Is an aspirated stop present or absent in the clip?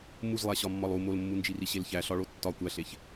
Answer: absent